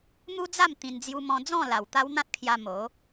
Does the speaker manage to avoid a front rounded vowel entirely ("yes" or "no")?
yes